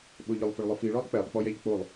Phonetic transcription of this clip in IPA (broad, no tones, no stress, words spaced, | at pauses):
ɓʊ ʎʊlˠfʊɭlˠʊfi ɭɔlˠk͡pɛlˠ k͡pɔjɛʎk͡polˠ